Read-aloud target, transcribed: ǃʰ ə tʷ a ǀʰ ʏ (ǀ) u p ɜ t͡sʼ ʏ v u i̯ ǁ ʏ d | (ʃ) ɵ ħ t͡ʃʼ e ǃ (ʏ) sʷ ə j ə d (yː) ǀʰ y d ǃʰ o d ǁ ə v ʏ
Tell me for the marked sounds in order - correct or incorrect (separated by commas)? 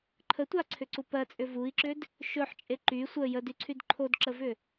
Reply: correct, correct, incorrect, incorrect